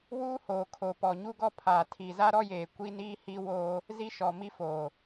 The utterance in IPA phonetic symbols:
w uː˦ h oː˨ kʰ o˨ p ɔ˨ ɲ u˦ ɡ ɔ˦ pʰ aː˨ tʰ i˨ z a˦ ɾ ɔ˦ j eː˨ kʷ i˦ n iː˦ h i˦ w oː˦ | z i˦ ʃ ɔ˨ m i˦ f oː˨

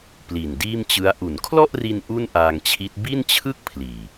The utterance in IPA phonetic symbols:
p l i˨˩ n d iː˥˩ m t͡ɕ ɯ˦˥ a̯ ʔ u˩˦ n kʰ l ɔ˥˩ ʔ r i˧ n ʔ u˥˩ n ʔ aː˧ ŋ t͡ɕʰ i˦˥ t̚ b i˥˩ n t͡ɕʰ ɯ˥˩ k̚ pʰ l iː˨˩

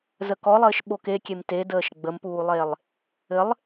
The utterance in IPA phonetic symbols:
z ə k ɔ lˠ ɘː ʃ ɓ o k e kʲ e m t e d əː ʃ ɡ͡b ə m p uː lˠ eː lˠ | ɘ lˠ

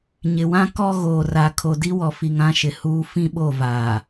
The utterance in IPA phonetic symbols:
ɲ ɪ˨ w ã˦ k ɔ˦ ɣ oː˨ r a˨ kʰ o˨ d i˦ w ɔ˨ f i˨ ŋ ã˦ ʃ ɪ˨ h uː˦ f ĩ˦ ɓ o˦˨ v aː˨

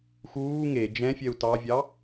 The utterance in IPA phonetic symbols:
x uː ŋ e d͡ʒ ɛ̃ fʲ ɛ u̯ t ɑ vʲ ɑ

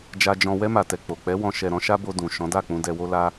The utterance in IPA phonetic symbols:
d͡ʒ a˧ d͡ʒ ɔ̃˧ w ɛ˧ m a˨ t ɛ˨ k͡p o˨ k͡p ɛ˨˦ w ɔ̃˧ ʃ ɛ˧ ɾ ɔ̃˦ ʃ a˦ b o˧ d ũ˨ ʃ ɔ̃˨˦ d a˦˨ k͡p ũ˧ d ɛ˧ w o˦ l a˦

